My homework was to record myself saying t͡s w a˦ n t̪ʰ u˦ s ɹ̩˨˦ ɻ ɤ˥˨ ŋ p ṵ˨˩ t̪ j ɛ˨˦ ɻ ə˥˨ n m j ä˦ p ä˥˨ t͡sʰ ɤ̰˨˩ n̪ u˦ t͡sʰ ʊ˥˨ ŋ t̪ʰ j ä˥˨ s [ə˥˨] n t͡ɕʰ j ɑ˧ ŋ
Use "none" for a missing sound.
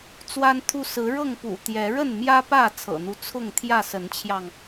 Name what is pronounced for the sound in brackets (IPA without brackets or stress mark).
ə˨˦